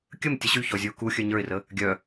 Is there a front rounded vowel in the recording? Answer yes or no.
yes